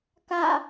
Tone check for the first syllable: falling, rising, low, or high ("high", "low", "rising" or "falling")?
falling